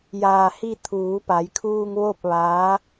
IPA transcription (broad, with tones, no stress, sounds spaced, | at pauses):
j aː˧˩ h i˥˨ t̪ʰ uː˩˧ p a˩˧ j kʰ uː˧ ŋ ʋ o˥˨ p̚ ʋ aː˧˥